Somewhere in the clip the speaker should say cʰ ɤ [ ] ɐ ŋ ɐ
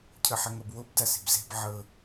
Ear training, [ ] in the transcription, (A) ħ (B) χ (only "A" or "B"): A